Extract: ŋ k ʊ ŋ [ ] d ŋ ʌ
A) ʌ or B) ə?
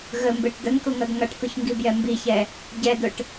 A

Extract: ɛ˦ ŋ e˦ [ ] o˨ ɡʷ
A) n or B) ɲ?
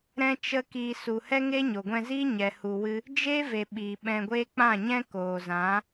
B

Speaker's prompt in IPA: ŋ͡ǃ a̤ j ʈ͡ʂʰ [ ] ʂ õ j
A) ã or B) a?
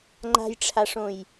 B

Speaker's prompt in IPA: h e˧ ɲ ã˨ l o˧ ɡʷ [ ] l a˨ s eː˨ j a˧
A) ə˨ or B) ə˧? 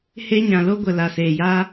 A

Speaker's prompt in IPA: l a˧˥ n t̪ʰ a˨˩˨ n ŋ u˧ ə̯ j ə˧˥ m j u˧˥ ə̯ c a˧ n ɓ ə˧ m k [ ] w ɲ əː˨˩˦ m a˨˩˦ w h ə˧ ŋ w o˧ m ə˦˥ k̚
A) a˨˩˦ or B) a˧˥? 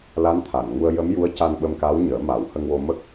B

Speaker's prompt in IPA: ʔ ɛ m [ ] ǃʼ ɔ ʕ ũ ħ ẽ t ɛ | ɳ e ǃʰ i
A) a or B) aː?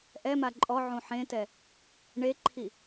A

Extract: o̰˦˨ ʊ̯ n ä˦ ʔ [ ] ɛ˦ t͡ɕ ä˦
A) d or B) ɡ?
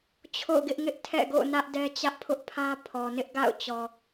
A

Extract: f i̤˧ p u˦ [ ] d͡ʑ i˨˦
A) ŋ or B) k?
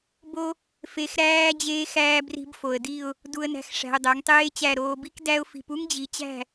A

